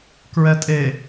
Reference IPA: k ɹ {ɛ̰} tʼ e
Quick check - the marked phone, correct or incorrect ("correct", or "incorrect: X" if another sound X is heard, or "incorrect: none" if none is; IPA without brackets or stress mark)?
incorrect: ɛ